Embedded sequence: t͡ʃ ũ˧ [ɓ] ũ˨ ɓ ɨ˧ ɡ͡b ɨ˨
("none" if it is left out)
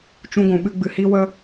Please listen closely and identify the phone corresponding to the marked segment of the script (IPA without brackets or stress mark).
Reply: ɡʷ